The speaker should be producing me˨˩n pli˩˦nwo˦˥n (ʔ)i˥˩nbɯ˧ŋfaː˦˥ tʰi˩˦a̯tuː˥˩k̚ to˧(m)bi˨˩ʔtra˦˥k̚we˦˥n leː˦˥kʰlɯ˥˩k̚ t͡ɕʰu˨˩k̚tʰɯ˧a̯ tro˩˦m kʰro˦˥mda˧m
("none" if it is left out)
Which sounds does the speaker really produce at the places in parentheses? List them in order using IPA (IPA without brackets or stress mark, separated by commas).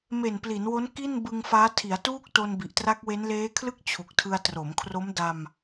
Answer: k, n